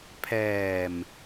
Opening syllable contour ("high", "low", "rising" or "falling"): low